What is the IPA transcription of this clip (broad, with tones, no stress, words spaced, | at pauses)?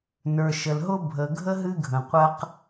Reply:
nə˞˨ʃə˨lɦʊ˦ bʱə˨ɡʱə˦ ɦɨ˦ɡʱə̃˨qʷə˦q